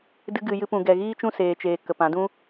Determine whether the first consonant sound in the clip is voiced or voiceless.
voiced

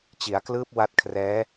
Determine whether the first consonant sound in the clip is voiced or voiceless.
voiceless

